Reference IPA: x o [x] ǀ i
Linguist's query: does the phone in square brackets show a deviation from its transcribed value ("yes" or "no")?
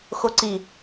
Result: yes